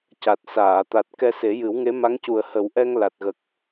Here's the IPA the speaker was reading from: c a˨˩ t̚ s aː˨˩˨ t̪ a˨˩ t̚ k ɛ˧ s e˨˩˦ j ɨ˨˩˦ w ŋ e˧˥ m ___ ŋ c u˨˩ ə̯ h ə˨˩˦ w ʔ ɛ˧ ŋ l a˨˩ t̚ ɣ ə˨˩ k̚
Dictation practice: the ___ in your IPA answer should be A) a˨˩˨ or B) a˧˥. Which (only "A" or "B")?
B